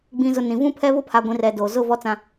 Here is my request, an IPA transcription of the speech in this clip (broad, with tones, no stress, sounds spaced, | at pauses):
ɡ͡b ĩ˨ z ʊ˨ n ĩ˨ v ũ˦ pʰ ɛ˦ β ʊ˦ pʰ a˨ ɡʷ ĩ˨ r ɛ˨ d oː˨ z ʊ˦˨ v ɔ˦ t͡s ã˦